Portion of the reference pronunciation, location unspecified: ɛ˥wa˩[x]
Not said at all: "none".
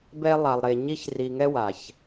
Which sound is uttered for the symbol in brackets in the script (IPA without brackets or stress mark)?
ç